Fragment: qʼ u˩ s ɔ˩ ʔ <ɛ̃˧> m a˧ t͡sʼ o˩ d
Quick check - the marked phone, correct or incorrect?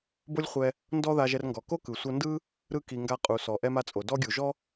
incorrect